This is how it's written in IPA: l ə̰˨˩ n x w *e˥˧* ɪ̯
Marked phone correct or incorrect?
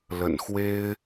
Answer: incorrect